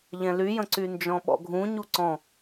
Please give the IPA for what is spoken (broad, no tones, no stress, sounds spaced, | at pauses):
ʎ ɛ̃ l y j ə̃ ǀ y n d͡ʒ ɔ̃ ɓ ɔ̰ ɡʱ ũ ɲ u ǀ ɔ̃